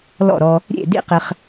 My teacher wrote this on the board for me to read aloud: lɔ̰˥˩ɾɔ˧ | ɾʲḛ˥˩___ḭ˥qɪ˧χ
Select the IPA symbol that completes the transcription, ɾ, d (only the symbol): d